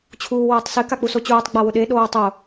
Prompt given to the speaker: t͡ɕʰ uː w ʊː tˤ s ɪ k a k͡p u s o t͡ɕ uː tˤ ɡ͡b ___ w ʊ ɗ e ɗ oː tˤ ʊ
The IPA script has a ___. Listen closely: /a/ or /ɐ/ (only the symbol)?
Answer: a